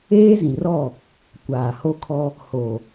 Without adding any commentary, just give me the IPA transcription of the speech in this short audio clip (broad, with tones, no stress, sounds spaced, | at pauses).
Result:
eː˦ z ĩ˨ r ɔ˦˨ | kʷ aː˨ h o˦ kʰ ɔ˦ | h o˨